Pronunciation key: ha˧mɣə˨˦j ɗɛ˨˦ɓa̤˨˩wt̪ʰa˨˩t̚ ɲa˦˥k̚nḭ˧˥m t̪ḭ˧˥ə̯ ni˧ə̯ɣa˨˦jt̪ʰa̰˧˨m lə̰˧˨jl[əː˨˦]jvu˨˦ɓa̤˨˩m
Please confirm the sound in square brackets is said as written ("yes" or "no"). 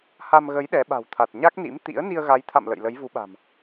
no